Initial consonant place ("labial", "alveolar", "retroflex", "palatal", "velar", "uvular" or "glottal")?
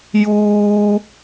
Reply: palatal